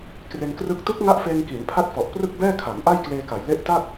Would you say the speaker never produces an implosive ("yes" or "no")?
yes